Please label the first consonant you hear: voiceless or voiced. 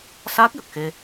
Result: voiceless